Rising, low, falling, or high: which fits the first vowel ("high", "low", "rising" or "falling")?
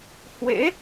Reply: rising